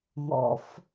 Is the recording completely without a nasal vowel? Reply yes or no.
yes